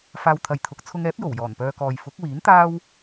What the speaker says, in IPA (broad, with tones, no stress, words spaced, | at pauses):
faː˧wt̪ʰɐ˨jt̪ʰʊ˨˥k̚ t͡sʰʊ˧ŋɛː˨˥p̚jo˨˩w jɔː˨˩npœː˧kɔː˨j fʊ˨˥k̚wiː˨˥nt̪aː˥w